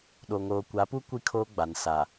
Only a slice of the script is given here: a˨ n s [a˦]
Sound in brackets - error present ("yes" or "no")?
yes